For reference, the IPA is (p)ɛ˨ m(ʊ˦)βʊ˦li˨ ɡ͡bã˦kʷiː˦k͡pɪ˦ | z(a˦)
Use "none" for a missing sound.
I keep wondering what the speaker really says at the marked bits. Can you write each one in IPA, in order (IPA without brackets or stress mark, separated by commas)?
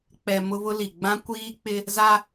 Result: k͡p, ʊ˦, a˦